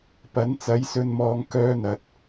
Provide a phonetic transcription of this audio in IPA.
p ɐ˨˥ n t͡s ɐ˨˥ j s ɵ˧ n m ɔː˧ ŋ k œː˥ n̪ ɐ˨˥ t̚

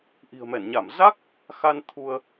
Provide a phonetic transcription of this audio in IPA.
ʔ i̤˨˩ ə̯ m ɛ˧˩ n ɲ a˧˩ m z a˦˥ k̚ | x a˧ n t̪ʰ u˧ ə̯

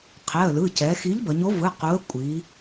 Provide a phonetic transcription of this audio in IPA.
qʰ ɛ˩˧˩ ə̯ l ɯ˩˧˩ c ɛ˩˧ x i˨˥ ʎ b ʌ˩˧ ɲ o˨˥ v ɯ˩˧˩ q u˨˥ ə̯ kʷʼ i˩˧

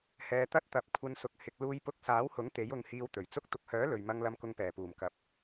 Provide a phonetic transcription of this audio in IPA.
h ɛː˧ t̪ ɐ˥ t̚ t̪ ɐ˨˥ p̚ kʷʰ ɐ˧ n s ʊ˨˥ k̚ h ɪ˧ k̚ l uː˧ j p ʊ˧ k̚ s aː˨˥ w h ʊ˨˥ ŋ t̪ e˨˥ j ʊ˧ ŋ h iː˧ w t̪ ɵ˨˩ ɥ t͡s ʊ˥ k̚ t̪ ʊ˧ k̚ h œː˨˥ l ɵ˨ ɥ m ɐ˧ ŋ l ɐ˧ m k ʊ˧ ŋ p ɛː˨˩ p uː˨˩ m k ɐ˨˥ p̚

